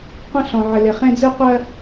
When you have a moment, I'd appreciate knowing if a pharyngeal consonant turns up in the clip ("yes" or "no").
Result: yes